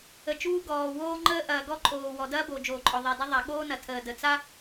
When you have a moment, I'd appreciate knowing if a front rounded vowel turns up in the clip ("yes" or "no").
no